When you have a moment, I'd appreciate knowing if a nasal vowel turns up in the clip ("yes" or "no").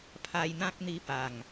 yes